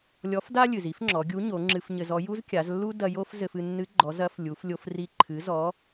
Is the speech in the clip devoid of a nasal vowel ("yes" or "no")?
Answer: yes